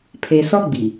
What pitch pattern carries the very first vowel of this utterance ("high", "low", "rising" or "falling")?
low